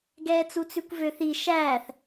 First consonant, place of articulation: velar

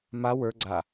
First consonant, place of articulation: labial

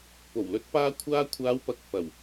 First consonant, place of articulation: labial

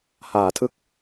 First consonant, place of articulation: glottal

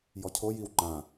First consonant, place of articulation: palatal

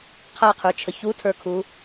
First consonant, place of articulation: uvular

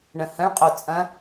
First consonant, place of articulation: retroflex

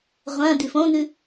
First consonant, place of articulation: uvular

